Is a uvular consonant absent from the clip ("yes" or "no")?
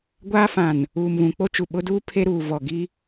yes